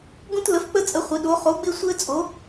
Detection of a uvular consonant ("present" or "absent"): present